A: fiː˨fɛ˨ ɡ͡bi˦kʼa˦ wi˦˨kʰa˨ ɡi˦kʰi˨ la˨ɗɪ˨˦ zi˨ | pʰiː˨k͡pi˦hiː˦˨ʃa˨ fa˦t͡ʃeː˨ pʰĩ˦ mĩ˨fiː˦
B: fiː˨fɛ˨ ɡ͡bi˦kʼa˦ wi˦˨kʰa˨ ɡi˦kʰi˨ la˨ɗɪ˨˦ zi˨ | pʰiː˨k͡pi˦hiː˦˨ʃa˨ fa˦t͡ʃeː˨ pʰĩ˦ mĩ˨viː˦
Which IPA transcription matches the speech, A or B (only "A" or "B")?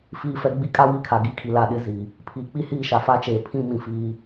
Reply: A